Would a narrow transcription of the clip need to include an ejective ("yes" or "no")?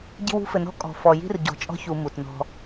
yes